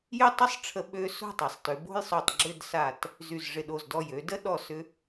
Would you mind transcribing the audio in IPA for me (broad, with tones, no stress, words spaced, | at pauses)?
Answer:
jɪ˥˧tˤə˥sˤʈ͡ʂʰə˧ ɓø˥ so̤˥˧tˤɐ˩˧sˤtʏ˩˧ bo̤˥jsˤo˧˩tˤ ɡ͡ǁʏ˥˧d sa˧˩t | zy˧˩zʐɪ˧˩ɗo˧˩zdɔ˧˩j ø˩˧də˥ ɗɔ˧˩ sʏ˧